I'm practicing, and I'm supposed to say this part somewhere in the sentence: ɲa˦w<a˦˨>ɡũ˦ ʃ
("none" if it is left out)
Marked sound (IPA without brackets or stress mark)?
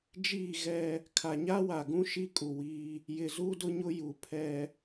a˨